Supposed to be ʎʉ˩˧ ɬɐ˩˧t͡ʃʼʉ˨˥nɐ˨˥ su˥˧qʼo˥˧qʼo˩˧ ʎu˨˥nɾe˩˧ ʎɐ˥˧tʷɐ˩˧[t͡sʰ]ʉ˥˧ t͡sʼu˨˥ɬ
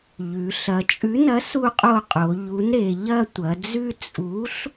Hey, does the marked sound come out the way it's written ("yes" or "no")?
no